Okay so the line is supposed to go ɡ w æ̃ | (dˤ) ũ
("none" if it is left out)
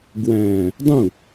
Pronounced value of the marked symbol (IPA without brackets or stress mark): dˤ